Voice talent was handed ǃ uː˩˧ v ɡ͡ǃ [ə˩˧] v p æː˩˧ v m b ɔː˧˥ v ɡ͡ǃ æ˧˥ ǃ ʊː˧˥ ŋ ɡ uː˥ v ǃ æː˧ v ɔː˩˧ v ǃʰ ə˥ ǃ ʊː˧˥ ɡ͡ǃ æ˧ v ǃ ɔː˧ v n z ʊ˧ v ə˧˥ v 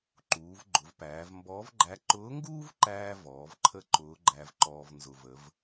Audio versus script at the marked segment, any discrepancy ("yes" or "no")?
yes